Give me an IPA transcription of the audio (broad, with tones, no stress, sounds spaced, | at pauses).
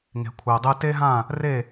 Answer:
ŋ e̤˩ kʷʰ e˩ o̯ dˤ e˧ t e˥ ɦ ã˥˩ | r e˥˩